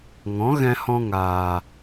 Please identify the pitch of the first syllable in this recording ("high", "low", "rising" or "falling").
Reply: rising